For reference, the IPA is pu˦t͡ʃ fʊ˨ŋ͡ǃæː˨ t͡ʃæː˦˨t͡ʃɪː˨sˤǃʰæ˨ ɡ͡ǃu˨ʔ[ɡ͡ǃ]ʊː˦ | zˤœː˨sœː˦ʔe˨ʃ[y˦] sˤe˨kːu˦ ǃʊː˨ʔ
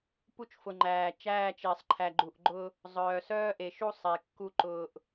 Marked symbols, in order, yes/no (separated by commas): yes, no